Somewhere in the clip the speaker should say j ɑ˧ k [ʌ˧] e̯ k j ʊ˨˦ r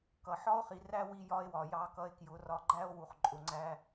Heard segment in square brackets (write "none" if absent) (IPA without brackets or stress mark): ʌ˧